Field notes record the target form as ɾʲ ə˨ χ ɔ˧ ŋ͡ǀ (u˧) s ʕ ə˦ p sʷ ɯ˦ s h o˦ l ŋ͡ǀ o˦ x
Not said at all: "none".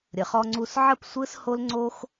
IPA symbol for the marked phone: u˧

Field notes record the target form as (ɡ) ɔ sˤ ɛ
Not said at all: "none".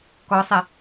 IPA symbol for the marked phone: k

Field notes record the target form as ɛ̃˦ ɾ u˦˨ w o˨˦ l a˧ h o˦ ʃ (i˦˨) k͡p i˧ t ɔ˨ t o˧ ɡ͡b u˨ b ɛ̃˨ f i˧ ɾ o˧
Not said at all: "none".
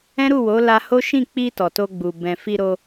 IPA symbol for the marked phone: ĩ˦˨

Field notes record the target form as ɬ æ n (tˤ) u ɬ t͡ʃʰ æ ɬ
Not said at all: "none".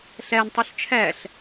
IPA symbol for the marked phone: tˤ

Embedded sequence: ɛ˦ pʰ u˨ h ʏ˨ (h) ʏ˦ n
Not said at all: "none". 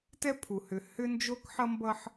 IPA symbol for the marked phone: h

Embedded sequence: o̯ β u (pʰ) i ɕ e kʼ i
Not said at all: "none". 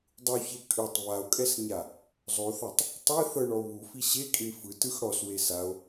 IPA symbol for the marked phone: f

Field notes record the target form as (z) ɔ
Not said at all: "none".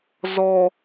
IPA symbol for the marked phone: z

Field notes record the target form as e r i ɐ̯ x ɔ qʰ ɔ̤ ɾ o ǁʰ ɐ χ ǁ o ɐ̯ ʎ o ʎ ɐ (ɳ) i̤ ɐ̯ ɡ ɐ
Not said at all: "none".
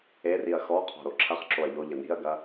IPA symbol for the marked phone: n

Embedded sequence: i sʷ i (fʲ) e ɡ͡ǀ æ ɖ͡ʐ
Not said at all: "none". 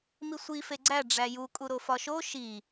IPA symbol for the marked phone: f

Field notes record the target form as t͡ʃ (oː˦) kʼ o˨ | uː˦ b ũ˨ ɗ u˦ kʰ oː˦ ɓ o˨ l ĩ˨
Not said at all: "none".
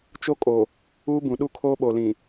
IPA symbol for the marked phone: o˦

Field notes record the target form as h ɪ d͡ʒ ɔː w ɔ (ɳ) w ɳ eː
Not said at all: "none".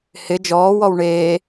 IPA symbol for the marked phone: none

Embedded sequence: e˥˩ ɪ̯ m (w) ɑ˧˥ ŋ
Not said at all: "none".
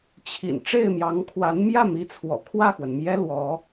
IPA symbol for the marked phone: j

